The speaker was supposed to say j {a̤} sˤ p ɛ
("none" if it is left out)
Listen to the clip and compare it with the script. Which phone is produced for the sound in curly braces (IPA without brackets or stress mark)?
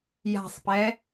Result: a̤